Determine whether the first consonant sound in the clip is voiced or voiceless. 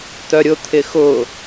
voiceless